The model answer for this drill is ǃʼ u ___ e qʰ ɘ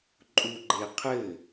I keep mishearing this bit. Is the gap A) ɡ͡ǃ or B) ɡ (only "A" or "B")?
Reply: A